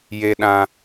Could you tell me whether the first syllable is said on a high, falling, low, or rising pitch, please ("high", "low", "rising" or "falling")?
high